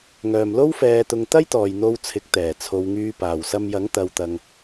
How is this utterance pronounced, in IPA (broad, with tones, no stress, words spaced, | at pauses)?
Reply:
ŋœː˨˩mlo˥wfɛː˨t̪ʊ˨ŋ t̪ɐ˥jt̪ɔː˨˩j n̪o˧w t͡sʰɪ˨˥k̚t̪ɛː˨˩ t͡sʰo˨wŋyː˧paː˨˩w sɐ˧mjɐ˨˥ŋ t̪ɐ˨wt̪ɐ˨ŋ